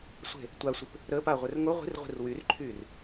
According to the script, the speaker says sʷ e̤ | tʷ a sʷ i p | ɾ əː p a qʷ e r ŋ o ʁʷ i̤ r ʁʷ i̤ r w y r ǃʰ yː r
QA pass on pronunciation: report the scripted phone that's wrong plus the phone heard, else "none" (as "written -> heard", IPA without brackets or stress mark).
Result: qʷ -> ʁʷ